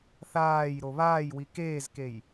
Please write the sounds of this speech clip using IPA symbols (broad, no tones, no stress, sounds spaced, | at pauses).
θ aː j ɾ o β aː j w i k eː z k e j